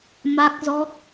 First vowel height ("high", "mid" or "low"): low